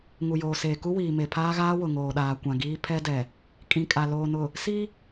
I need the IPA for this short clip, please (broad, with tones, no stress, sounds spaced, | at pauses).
ŋ u˨ j oː˨ s eː˨ k u˦ w iː˨ m e˨ pʰ aː˦ ɣ aː˦ w ʊ˨ ŋ oː˨ ɗ aː˨ kʷ ã˨ ɡ iː˦ pʰ ɛ˦ d ɛ˨ | kʼ ĩ˨ kʼ a˨ l oː˨ n ʊ˨ | s i˦